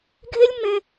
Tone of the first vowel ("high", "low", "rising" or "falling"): high